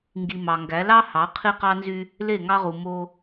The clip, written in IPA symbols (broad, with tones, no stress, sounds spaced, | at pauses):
ŋ ɡ i˨ m ɑ˨ ŋ ɡ æ˨˦ l ɑ˦ h ɑ˨˦ qʰ i˦ q ɑ˦ n z y˦ | l e˦˨ ŋ ɑ˦ ʁ u˨ m o˦